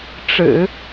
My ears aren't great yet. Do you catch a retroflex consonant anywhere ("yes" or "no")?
yes